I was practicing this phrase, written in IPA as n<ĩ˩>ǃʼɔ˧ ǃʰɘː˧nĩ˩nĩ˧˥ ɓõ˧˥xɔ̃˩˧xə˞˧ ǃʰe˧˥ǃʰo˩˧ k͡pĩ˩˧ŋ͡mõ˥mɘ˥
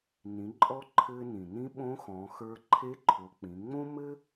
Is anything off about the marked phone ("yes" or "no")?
yes